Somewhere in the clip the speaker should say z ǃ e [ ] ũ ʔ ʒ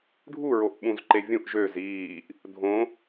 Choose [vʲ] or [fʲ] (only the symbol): vʲ